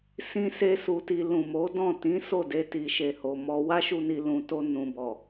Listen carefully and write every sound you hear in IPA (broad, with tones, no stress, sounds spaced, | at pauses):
s ĩ˦ s e˦ s u˧ t i˧ l ũ˨ m o˨˦ d ɔ̃˦˨ t ĩ˨˦ s o˦˨ d e˧ t i˨ ʃ e˨ h o˨ m ɔ˧ w a˦ ʃ u˧ n i˨ l ũ˨ t o˧ n ũ˨ b ɔ˨